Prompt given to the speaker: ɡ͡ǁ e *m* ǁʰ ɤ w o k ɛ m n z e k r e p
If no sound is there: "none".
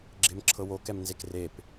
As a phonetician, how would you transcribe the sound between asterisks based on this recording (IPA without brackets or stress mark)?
m